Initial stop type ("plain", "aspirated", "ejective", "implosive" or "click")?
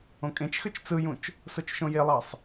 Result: ejective